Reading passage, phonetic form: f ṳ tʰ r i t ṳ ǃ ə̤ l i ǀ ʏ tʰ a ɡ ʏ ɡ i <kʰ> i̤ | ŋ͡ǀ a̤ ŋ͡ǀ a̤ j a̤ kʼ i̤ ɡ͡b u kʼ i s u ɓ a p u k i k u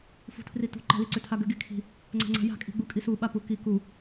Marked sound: correct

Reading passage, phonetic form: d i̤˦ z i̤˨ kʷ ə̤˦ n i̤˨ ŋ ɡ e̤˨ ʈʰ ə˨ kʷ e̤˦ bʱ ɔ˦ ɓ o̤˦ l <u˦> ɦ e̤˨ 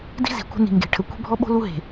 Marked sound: correct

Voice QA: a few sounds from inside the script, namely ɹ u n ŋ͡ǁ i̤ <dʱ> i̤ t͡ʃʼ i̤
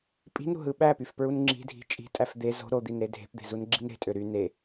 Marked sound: correct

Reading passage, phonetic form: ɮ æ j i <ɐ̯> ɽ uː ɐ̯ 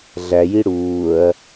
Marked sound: incorrect: none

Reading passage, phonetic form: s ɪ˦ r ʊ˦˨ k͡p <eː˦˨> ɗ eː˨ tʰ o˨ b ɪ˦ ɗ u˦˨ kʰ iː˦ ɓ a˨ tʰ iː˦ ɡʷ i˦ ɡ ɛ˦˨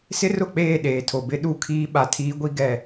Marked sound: correct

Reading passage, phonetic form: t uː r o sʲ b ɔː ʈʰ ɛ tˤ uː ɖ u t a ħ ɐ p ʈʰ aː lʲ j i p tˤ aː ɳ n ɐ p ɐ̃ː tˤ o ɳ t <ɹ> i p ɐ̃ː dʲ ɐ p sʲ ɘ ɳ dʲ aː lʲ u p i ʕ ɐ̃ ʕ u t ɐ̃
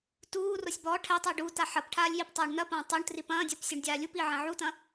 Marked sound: incorrect: r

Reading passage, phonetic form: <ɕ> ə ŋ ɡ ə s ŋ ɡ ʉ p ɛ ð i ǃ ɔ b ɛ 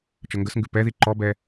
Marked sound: incorrect: t͡ʃ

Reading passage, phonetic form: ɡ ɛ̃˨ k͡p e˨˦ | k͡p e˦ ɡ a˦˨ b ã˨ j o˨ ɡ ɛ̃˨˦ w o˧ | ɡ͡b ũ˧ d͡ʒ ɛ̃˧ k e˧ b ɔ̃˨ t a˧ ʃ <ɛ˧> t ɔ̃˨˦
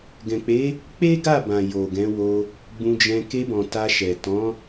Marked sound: incorrect: ɛ˨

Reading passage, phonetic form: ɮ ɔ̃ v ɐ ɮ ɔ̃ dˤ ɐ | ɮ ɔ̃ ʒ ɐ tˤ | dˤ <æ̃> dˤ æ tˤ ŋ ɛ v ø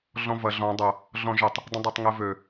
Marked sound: incorrect: ə̃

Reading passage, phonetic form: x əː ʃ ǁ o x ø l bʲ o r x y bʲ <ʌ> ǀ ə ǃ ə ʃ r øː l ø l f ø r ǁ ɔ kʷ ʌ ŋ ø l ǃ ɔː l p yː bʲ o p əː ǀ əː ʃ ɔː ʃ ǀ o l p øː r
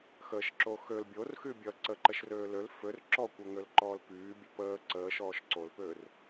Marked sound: correct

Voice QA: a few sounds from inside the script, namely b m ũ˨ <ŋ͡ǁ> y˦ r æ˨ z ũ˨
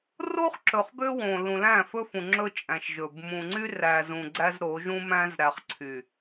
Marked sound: incorrect: ŋ͡ǀ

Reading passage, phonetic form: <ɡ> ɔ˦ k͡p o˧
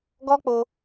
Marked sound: correct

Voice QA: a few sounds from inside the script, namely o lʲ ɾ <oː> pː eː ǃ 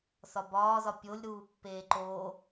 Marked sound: incorrect: uː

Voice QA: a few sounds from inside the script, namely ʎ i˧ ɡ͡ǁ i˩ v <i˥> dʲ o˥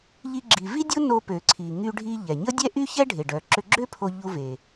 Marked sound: correct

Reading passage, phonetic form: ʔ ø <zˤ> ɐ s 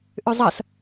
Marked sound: correct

